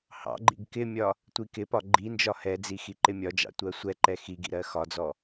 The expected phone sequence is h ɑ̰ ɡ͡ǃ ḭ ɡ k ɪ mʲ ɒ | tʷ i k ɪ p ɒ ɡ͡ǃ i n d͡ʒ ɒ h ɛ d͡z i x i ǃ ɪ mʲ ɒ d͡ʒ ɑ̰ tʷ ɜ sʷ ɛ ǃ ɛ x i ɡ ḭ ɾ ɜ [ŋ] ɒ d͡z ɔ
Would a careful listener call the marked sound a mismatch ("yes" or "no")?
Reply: yes